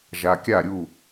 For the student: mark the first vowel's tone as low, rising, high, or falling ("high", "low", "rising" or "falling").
low